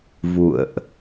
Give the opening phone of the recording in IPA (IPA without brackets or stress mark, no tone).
v